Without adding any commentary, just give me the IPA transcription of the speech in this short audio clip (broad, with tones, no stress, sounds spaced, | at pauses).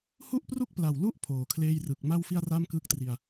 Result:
h u˥˩ ʔ p r u˥˩ k̚ p l a˨˩ w l u˥˩ ʔ pʰ oː˨˩ kʰ l eː˥˩ j r ɯ˨˩ k̚ m a˥˩ w f i˥˩ a̯ r a˥˩ m k ɯ˦˥ k̚ t r i˧ a̯